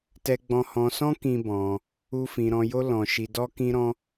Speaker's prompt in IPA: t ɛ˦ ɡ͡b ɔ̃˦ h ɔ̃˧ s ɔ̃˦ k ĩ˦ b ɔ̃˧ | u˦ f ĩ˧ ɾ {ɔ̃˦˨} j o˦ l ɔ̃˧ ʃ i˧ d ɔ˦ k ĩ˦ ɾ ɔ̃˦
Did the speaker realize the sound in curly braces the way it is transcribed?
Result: no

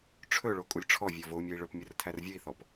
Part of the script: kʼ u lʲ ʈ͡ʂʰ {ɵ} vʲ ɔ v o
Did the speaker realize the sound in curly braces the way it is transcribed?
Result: no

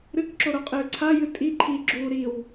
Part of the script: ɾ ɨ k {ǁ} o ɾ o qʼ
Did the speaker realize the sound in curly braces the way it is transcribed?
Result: yes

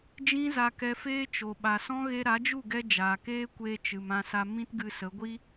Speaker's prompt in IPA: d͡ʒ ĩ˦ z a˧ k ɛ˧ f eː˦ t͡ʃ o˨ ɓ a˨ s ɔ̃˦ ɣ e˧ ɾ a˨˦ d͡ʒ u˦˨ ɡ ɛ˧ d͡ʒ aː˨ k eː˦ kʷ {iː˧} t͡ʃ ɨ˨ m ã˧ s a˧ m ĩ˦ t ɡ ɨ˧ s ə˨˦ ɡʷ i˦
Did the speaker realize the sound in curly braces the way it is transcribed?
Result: no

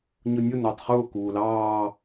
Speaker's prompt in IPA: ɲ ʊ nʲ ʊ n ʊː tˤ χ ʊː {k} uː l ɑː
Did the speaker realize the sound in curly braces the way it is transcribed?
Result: yes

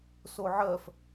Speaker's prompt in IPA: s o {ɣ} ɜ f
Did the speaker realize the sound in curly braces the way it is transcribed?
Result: no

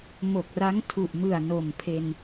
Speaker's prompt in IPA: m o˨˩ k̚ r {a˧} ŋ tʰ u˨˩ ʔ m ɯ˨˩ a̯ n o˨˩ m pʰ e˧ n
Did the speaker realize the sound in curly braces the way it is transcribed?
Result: no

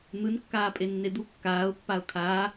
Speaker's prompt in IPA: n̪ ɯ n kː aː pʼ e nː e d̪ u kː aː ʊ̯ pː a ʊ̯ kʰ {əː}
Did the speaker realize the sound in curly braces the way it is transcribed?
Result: no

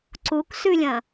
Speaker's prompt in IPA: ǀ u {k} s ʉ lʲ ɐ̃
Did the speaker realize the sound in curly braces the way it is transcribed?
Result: yes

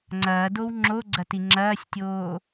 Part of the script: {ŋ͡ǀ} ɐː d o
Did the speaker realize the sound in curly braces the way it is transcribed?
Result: yes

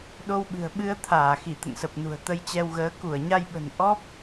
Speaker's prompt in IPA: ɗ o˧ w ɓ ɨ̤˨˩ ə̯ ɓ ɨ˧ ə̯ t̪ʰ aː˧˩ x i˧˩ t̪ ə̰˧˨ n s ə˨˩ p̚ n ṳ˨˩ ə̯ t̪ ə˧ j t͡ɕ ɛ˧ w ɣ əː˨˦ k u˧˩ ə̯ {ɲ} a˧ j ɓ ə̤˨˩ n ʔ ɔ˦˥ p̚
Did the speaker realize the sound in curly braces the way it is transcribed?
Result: yes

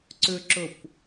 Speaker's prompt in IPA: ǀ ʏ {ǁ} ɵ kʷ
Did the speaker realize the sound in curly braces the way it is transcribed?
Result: yes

